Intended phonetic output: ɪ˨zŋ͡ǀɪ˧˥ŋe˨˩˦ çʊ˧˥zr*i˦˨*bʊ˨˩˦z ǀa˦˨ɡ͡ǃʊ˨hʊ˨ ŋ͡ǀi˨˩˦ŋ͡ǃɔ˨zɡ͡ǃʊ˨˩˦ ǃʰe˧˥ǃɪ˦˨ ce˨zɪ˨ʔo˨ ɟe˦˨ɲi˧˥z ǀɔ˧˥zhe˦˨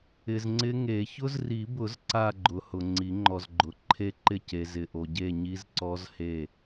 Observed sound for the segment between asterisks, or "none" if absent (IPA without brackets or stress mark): i˨˩˦